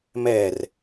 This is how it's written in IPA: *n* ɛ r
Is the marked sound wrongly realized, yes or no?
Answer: yes